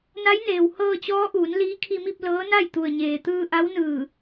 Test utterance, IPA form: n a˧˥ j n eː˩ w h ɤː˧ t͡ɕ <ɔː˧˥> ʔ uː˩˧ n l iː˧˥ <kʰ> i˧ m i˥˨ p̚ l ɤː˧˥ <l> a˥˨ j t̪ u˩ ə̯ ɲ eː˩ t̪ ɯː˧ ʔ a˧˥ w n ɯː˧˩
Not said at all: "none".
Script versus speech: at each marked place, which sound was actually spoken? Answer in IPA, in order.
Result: ɔː˧˥, kʰ, n

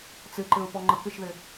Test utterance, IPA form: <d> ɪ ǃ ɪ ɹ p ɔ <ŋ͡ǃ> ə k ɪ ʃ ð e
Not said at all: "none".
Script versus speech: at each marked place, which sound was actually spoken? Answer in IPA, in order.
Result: t͡s, ŋ͡ǃ

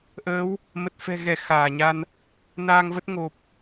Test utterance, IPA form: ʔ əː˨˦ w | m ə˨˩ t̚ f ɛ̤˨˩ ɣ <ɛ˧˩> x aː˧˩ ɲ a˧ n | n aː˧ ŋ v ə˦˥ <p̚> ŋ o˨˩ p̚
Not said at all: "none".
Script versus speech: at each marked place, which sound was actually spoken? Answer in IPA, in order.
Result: ɛ˧˩, t̚

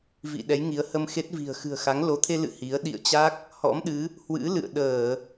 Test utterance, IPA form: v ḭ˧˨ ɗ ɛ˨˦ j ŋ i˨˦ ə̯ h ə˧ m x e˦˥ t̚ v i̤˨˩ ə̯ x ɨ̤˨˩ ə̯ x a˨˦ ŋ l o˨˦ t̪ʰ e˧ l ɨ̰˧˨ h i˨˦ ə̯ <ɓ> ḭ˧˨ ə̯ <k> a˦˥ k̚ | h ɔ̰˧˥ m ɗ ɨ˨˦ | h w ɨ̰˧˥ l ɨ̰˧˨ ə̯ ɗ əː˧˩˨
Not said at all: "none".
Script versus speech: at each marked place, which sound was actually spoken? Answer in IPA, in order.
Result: ɗ, t͡ɕ

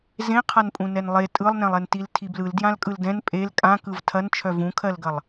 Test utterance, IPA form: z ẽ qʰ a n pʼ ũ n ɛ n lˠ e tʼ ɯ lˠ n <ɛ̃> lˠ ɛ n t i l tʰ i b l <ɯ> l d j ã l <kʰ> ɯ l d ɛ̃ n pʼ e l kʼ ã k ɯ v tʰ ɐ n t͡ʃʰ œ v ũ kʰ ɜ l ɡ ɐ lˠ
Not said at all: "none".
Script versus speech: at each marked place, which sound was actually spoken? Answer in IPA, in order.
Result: ɛ̃, ɯ, kʼ

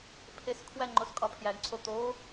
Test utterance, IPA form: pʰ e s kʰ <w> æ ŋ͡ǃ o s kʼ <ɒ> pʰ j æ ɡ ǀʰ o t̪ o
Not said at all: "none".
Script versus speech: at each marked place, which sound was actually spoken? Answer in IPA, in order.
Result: w, ɒ

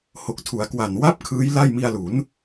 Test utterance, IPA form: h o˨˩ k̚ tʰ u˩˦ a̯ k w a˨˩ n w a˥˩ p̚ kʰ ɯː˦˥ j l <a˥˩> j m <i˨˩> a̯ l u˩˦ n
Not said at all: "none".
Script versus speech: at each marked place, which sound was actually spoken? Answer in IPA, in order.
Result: a˥˩, i˧

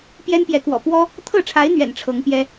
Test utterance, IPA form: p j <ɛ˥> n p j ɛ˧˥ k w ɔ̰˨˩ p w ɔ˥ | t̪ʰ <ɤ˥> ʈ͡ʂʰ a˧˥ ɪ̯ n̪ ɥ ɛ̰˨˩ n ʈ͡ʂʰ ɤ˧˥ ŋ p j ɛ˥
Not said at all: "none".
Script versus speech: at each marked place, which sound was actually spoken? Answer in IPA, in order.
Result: ɛ˥, ɤ˥˩

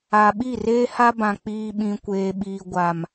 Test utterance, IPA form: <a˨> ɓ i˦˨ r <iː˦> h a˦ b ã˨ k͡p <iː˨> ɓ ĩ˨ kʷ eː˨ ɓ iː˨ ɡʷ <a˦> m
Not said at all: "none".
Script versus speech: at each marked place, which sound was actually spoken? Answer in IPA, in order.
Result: a˨, eː˦, iː˨, a˨

